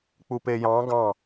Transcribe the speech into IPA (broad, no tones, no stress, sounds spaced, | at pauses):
k͡p u p e j ɑ̃ ɡ ɑ̃